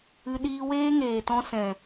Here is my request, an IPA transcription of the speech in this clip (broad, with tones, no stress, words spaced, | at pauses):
ɨ˧ ɗiː˧weː˦ŋeː˨tɔ̃˧ sɛ̃˨